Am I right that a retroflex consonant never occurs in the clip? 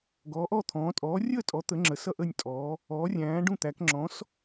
no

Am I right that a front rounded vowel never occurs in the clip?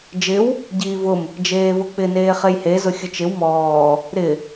yes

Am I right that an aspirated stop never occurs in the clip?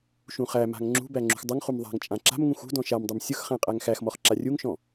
yes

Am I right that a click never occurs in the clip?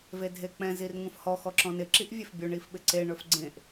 no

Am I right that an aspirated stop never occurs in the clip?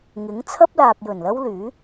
no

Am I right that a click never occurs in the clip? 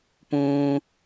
yes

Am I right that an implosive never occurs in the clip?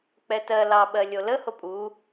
no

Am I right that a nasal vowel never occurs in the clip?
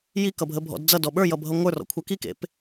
yes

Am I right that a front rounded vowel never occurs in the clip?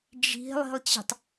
yes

